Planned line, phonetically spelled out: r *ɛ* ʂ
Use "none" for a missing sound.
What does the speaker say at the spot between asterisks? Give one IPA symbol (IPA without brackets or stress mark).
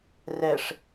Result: ɛ